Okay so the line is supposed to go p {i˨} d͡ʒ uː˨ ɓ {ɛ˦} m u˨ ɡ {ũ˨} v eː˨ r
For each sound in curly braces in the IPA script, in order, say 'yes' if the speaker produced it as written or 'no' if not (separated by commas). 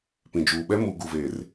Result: no, yes, no